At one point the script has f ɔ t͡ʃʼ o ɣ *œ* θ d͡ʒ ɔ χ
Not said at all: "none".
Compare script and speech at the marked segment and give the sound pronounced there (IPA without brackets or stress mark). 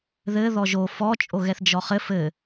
ɛ